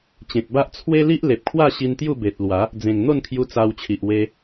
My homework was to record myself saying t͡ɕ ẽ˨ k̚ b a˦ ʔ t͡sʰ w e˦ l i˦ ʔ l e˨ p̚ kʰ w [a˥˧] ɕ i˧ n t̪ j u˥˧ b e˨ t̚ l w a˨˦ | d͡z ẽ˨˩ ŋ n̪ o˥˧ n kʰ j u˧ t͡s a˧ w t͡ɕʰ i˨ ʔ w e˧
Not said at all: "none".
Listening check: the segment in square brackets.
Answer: a˥˧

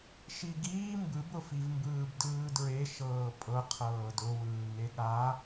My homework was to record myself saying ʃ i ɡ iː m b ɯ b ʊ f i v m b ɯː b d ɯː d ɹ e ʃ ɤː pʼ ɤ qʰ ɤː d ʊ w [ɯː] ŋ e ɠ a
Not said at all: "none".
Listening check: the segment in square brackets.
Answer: ɯː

